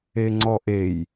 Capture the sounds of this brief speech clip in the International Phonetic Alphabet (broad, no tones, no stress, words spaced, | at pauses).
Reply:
eŋ͡ǀɔʔej